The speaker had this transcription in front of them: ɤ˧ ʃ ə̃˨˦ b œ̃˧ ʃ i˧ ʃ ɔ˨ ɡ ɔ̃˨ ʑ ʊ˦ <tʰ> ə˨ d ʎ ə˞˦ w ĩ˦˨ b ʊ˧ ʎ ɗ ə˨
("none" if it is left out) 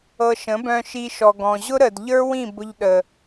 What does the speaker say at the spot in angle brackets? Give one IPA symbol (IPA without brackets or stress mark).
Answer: ɾ